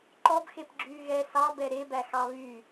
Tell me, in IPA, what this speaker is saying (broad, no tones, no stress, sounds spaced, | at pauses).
ǃ ɔ b x e p ɡ͡ǁ yː ɣ ɛ s ɑ b ɛ ɾ e b æ x ɑ β y